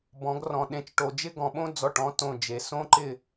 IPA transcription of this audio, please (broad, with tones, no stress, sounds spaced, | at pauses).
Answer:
b ɔ̃˩˧ ɡ r ɔ̃˩ ɗ ẽ˩˧ t͡ʃ ʈ o˩ d͡ʒ ɪ˥ ɡ ɔ̃˩ ɓ õ˥ d͡z ɔ˩˧˩ ʈ ɔ̃˨˥ t õ˩˧˩ d͡ʒ e˩ s õ˥ ǃ ɪ˥˨